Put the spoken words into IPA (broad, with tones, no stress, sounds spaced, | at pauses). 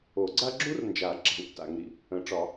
o˨˩˦ ɡ͡ǀ a˥ ɡ͡ǁ u˥ r n d͡ʒ a˨˩˦ ǁ a̤˨ w tː a̰˨˩˦ ŋ ɾ ḭ˥˨ | ə̃˨˩˦ ʈ͡ʂ ɒ˨˩˦